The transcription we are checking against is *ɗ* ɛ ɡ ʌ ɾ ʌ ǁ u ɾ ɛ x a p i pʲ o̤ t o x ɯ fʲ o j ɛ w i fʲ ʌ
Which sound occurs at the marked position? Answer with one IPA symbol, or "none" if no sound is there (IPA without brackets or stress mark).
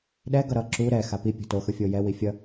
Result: ɗ